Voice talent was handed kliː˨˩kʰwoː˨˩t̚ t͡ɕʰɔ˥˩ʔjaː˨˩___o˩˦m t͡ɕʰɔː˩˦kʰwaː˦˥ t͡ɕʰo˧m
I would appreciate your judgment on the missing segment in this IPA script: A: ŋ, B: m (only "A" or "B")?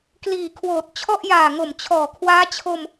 A